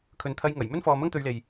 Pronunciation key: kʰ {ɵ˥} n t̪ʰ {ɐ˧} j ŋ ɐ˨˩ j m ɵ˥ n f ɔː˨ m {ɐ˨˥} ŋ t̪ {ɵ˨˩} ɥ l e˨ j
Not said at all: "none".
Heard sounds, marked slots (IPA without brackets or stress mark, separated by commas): ɵ˨, ɐ˧, ɐ˥, ɵ˧